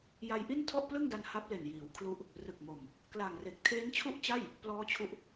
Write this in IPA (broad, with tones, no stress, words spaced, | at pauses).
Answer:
ja˧jʔi˥˩n tʰɔ˥˩ʔplɯ˥˩ŋda˧n ha˦˥p̚le˨˩njiː˩˦wkʰlu˦˥ʔ | rɯ˨˩k̚mo˨˩m | kla˨˩ŋre˨˩k̚ tʰeː˦˥nt͡ɕʰu˥˩ʔt͡ɕa˥˩j | plɔː˦˥t͡ɕʰu˦˥ʔ